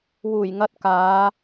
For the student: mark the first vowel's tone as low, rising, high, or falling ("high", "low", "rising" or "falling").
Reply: low